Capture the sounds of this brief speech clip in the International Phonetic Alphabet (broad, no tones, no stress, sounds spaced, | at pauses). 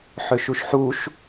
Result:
ħ ø ʃ u ʃ ħ u ʃ